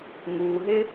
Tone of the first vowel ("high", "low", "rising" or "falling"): low